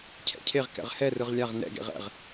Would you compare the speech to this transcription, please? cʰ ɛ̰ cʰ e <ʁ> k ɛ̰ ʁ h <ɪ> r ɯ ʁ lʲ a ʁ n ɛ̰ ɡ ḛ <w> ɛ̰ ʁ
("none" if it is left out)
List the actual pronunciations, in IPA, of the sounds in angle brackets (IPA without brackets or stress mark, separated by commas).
ʁ, ɛ, ʁ